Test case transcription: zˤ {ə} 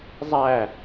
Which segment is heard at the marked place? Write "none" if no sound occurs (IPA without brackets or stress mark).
æ